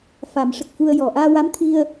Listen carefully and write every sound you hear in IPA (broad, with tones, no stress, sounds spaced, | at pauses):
f a˨˩˦ m ʂ ə˨˩ k̚ f u˧ ə̯ j ɔ˨˩ ʔ aː˧ w a˧˥ m t̪ʰ i˧ ə̯